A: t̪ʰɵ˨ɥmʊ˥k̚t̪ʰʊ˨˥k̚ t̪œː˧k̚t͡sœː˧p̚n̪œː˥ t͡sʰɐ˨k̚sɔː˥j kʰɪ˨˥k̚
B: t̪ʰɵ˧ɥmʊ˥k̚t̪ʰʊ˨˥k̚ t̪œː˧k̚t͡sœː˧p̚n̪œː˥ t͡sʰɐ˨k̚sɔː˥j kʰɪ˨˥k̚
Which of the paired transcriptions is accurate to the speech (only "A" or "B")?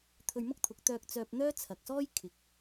B